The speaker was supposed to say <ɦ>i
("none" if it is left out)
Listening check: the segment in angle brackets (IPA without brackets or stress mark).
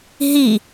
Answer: ɦ